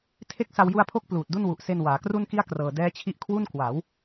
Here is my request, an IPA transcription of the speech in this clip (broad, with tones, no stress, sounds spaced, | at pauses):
tʰ e˥˩ k̚ s a˧ w j u˧ a̯ pʰ o˦˥ k̚ p l uː˨˩ t̚ d u˥˩ n w u˨˩ ʔ s e˧ n w aː˩˦ k r u˥˩ n k i˥˩ a̯ k r ɤː˨˩ d ɛː˦˥ t͡ɕʰ i˦˥ ʔ kʰ w u˥˩ n k w a˩˦ w